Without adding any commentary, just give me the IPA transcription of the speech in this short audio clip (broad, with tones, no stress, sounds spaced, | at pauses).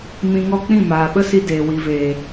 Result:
m ĩ˧ ŋ ɔ˦ k͡p ĩ˦˨ m aː˨ ɓ ə˦ s i˧ d eː˨ w i˨ v eː˨